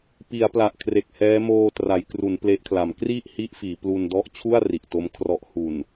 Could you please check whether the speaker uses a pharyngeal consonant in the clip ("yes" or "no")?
no